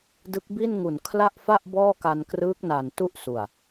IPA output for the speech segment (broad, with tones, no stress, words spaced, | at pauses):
dɯ˦˥k̚bi˥˩nŋu˨˩n kʰla˥˩ʔfa˥˩ʔ bɔː˥˩ka˧nkrɯː˦˥k̚na˨˩n tu˥˩ʔsu˨˩a̯